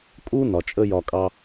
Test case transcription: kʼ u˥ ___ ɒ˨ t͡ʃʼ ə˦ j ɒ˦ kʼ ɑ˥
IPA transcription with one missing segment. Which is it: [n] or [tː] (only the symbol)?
n